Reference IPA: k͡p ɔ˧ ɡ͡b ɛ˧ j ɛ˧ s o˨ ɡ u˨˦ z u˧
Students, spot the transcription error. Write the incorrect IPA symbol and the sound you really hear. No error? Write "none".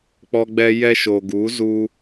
s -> ʃ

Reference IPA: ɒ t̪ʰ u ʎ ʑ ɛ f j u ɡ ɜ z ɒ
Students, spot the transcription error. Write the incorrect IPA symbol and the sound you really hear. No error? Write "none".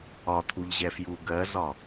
none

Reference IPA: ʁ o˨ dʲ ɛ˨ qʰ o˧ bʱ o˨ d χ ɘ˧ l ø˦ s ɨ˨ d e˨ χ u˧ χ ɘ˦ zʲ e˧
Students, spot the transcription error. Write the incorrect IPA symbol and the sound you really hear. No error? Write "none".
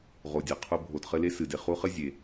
ø˦ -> e˦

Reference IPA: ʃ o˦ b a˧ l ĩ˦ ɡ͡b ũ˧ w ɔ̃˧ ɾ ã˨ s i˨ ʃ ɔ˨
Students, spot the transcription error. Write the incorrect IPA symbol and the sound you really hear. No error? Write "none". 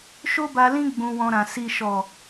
none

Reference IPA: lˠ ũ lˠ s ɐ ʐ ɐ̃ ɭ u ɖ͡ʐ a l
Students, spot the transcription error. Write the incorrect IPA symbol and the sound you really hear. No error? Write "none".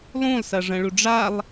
l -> lˠ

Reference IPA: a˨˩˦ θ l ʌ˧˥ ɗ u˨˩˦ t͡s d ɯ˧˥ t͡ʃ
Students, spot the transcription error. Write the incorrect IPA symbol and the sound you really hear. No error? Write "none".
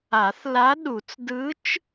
ʌ˧˥ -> a˧˥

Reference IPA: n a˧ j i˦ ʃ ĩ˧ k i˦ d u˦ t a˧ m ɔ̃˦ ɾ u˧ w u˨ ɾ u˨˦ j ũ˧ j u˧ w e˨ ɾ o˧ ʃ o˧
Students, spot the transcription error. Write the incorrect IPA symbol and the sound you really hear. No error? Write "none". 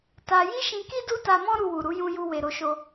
n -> t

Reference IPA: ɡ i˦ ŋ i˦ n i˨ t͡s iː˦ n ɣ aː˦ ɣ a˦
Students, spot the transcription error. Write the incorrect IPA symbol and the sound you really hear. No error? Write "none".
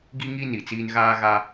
none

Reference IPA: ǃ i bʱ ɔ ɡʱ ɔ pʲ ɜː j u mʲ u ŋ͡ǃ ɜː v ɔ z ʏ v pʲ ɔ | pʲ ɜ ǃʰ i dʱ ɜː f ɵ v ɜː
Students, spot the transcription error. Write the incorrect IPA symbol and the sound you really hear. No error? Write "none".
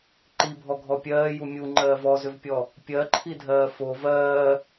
ɵ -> o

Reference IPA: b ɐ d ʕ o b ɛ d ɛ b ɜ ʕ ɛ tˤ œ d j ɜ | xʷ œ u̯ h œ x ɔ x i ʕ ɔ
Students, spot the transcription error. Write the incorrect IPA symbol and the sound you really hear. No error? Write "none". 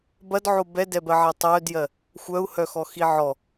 none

